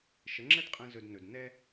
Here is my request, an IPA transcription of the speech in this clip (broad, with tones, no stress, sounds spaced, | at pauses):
ʃ ə˩˥ ŋ͡ǁ ɛ˥ d qʼ ɛ̃˧ z ɵ˧ d n ɵ˩ d n ɛ˥